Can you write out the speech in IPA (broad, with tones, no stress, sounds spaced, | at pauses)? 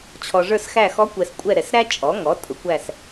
t͡ɕʰ ɔ˨ ʐ ə˞˦˨ s x æ˦˨ x ɔ˧˥ kʷ ɛ˨ s kʷʼ ɛ˦˨ ɾ ɛ˨ s ɾ æ˥ t͡ʃʼ ɔ˩˥ ŋ ɔ˩˥ tʼ ʊ˩˥ kʷ æ˦˨ s